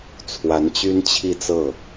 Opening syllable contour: rising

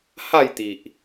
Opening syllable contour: falling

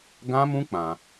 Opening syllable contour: high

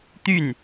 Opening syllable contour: falling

